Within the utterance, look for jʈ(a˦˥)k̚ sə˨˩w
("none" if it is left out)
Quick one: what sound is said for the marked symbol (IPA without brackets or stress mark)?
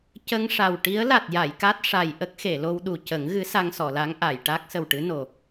a˦˥